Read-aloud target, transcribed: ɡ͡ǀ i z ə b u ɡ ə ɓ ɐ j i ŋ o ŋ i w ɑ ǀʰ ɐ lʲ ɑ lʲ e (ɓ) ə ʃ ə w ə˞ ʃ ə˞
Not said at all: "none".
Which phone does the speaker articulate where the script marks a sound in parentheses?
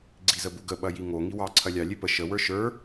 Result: p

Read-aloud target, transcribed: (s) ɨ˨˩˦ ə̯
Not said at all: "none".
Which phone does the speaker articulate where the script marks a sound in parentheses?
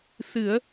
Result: s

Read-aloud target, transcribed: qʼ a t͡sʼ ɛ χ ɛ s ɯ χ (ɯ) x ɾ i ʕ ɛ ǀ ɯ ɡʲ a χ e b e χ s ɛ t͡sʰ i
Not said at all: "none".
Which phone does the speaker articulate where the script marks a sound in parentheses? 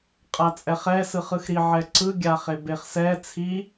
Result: ɯ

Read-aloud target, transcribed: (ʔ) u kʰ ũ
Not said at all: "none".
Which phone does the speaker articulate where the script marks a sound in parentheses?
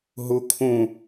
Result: ɦ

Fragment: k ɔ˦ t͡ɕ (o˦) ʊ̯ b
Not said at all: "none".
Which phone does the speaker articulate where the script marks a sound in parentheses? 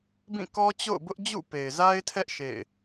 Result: o̰˦˨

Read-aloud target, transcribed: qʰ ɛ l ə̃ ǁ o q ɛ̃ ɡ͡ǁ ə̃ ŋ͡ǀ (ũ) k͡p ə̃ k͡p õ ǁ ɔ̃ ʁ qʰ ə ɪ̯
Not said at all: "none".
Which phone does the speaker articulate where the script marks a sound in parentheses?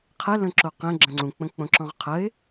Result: ũ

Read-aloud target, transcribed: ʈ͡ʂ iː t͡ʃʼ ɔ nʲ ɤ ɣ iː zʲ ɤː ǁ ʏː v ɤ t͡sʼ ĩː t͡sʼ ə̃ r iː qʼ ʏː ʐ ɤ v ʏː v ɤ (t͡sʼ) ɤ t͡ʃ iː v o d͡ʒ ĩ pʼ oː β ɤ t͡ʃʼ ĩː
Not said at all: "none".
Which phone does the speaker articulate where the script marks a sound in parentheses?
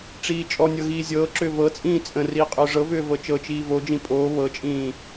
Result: t͡ʃ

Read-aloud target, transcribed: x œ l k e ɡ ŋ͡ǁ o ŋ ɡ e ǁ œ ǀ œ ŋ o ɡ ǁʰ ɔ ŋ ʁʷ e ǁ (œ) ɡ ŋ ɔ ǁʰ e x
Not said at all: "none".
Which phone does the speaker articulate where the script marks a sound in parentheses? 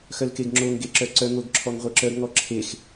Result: œ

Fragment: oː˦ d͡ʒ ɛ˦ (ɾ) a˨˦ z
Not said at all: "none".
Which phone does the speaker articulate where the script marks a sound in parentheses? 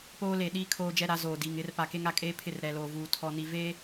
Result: ɾ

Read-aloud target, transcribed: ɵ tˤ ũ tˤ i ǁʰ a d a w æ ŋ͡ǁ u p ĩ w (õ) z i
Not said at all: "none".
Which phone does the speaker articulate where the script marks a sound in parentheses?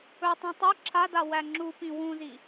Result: ũ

